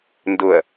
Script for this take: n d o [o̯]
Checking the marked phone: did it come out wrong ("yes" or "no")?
yes